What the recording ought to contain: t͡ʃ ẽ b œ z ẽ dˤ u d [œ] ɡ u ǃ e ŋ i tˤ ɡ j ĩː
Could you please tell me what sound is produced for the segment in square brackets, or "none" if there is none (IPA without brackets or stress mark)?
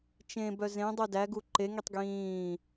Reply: æ